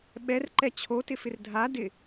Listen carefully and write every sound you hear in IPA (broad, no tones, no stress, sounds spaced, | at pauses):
ɓ ɛ r ǃ ɛ t͡ɕʰ o t ɪ f ɪ r dʱ a d ɪ